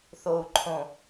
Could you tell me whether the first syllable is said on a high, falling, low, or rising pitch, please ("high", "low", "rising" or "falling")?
low